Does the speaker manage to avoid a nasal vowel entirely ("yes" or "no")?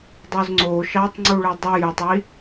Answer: yes